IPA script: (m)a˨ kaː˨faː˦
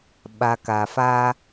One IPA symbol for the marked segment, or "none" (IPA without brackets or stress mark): ɓ